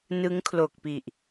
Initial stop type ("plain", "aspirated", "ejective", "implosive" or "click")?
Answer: aspirated